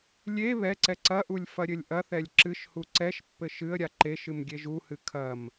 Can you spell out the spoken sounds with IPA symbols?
lʲ e β ɛ ǀ ɛ ǀ ɐ ʔ u lʲ f ɐ ɾʲ ɘ lʲ ʔ ɐ θ ɛ lʲ ǁ ɨ ʃ h u ǀ ɛ ʃ pː ɘ ʃ ɨ ə̯ ɾʲ a ǃ e ʃ ɨ m ɡʲ e ʒ u h ɨ kʰ ɐ m

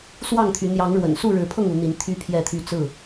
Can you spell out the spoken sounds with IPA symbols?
s w ɑ˥˨ ŋ t̪ʰ y˨˦ n̪ j ɑ˨˦ ŋ ɻ w ə̰˨˩ n s u˥˨ ɻ ɻ̩˨˦ pʰ ɤ˥˨ ŋ u˨˦ n̪ i˨˦ n t̪ʰ y˦ pʰ j ɛ˥˨ t̪ʰ y˥˨ t͡s ɹ̩˥˨

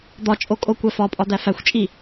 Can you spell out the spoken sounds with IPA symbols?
d̪ ɒ t͡ʃʼ o kʼ o kʷ æ f ɒ pʼ ɒ d̪ æ f æ xʷ t͡ʃʼ i

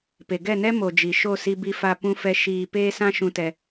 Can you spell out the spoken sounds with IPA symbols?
p e˨ ɡ ɛ˦˨ n ɛ˦ m o˨ d͡ʒ i˨ ʃ o˦˨ s i˧ b i˧ f a˧ p ũ˦ f ɛ˧ ʃ iː˧ p eː˦ s ã˦ ʃ ũ˧ t ɛ˧

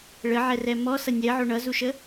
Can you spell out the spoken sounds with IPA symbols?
ɭ ə ʕ ɛ r ɛ m ɔ s ʌ nʲ ɛ ʕ o ɳ ʌ z u ʃ ə

